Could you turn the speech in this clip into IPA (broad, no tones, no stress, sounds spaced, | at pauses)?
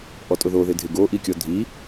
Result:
ʔ ɔ tʼ ʊ ð o ð ɪ dʱ ɪ ɡ o ʔ i kʲ ɔ dʱ i